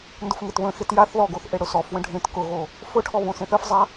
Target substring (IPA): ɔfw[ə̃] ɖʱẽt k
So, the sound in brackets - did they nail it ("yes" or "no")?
yes